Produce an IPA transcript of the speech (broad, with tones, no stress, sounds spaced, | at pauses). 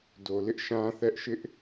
d o˨ l ɪ˦ ʔ ʃ ã˦ θ ɛ˦ ʔ ʃ ɪ˦ ʔ